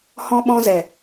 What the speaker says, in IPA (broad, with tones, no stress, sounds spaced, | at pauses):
h ɔ̃˧ ɓ ɔ̃˧ z ɛ˨